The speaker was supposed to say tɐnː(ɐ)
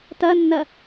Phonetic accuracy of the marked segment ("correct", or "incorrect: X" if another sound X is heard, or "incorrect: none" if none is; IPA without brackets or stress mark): correct